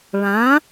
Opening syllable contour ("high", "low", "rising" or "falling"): rising